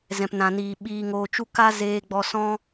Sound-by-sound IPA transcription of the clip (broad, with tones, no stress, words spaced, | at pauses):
zɛ̃˨pnã˨niː˨ ɓiː˨ŋoː˨t͡ʃu˧ ka˦ zeː˧ɡ͡bɔ˧ sɔ̃˦